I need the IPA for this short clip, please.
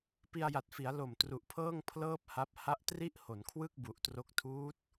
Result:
p i˧ a̯ j a˨˩ t̚ f i˩˦ a̯ l o˨˩ m t r u˨˩ ʔ pʰ ɤː˥˩ ŋ pʰ l ɤː˥˩ p̚ h a˦˥ p̚ h a˦˥ ʔ t r i˥˩ ʔ h o˩˦ n kʰ w ɯ˥˩ k̚ b u˨˩ ʔ t r o˦˥ k̚ tʰ uː˦˥ t̚

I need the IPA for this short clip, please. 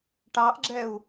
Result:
ʈ ɑ ʔ ɡ͡ǁ ɛ u̯

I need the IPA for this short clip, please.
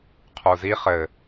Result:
qʰ u z i χ ɘ

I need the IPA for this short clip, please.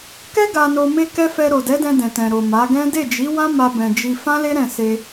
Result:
k ɛ˦ ɡ a˧ n o˧ m e˦ k ɛ˦ f ɛ˧ ɾ o˨ d ɛ˨˦ d ɛ̃˧ d ɛ̃˨ t ɛ̃˨ ɾ o˨ m a˨˦ ɡ ɛ̃˦ d e˦˨ d͡ʒ i˨˦ w ã˦ m a˧ b ɛ̃˨ d͡ʒ i˧ f ã˦ l e˦ ɾ ɛ̃˦˨ s e˧

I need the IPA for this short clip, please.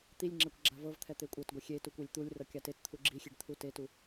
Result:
t̪ i lʲ ŋ͡ǁ ɛ kʷ ɡ͡ǁ a v ɤ v t̪ʰ ɛ t̪ e kʷʼ ɤ t ɡʷ ɛ xʲ e t u kʷ e lʲ t̪ u lʲ r ɤ kʲ a t e t t̪ʰ u ɡ͡ǁ i xʲ e ɖ t̪ʰ u t e t u

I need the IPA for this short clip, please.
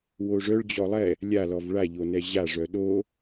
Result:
w o ʐ œ ɭ d͡ʑ ɔ lˠ ɛ | lʲ a l ɔ v ɭ a ʎ o n ɛ ʑ a ʐ œ ɗ o

